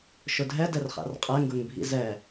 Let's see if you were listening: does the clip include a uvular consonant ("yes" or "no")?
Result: yes